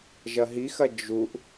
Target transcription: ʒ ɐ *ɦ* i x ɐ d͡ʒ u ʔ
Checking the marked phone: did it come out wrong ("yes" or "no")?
no